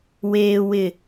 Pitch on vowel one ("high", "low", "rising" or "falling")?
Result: low